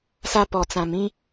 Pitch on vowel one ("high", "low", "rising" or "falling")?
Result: high